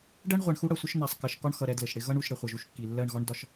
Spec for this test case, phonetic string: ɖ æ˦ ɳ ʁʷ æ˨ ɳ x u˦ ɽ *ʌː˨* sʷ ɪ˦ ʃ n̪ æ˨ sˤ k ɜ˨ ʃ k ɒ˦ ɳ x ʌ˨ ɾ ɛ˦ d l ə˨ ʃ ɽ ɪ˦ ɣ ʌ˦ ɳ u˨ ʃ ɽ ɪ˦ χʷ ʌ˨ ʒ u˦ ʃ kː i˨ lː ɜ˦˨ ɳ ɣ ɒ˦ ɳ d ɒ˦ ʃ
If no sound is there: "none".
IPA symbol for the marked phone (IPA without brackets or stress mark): ʌ˨